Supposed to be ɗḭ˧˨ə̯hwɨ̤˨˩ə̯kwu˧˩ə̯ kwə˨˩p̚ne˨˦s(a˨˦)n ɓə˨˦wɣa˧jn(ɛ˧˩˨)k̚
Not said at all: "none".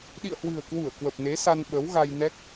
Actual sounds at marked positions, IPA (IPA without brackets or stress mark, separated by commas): a˧, ɛ˦˥